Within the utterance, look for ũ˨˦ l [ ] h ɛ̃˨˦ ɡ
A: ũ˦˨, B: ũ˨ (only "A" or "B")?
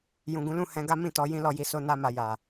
A